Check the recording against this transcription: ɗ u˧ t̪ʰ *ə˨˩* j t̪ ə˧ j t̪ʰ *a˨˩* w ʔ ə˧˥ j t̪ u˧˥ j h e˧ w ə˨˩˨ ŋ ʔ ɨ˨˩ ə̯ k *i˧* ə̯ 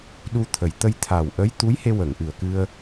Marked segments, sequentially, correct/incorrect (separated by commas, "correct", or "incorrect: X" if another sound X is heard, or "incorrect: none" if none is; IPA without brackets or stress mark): correct, correct, incorrect: ɨ˧